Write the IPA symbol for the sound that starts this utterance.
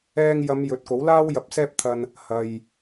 ɛː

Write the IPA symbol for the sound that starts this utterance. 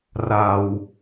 r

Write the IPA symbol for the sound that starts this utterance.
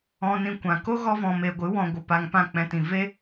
ɔ̃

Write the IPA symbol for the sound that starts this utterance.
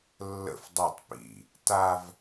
lː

